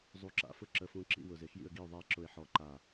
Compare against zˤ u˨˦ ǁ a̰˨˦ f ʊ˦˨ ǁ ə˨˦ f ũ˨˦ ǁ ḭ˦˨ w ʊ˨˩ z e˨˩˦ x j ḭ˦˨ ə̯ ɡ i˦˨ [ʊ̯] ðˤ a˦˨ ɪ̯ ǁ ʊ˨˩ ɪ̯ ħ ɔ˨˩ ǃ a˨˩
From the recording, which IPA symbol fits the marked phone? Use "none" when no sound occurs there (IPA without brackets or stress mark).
ʊ̯